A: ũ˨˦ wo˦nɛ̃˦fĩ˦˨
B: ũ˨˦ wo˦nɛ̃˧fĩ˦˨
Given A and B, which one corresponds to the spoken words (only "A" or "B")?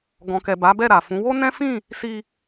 A